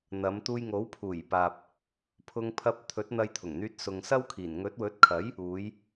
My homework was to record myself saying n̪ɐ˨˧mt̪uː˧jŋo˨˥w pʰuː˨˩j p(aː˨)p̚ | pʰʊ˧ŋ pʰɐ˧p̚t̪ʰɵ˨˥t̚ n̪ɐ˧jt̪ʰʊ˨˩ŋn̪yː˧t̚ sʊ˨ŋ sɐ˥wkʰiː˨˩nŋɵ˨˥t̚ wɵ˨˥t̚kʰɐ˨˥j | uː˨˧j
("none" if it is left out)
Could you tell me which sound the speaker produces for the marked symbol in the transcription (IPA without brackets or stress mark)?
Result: aː˨